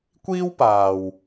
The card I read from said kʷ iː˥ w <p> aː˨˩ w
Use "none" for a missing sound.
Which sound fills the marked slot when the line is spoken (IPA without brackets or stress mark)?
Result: p